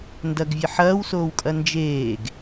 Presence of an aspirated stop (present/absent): absent